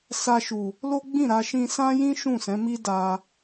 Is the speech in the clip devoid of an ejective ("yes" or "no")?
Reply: yes